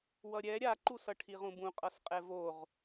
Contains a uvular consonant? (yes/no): yes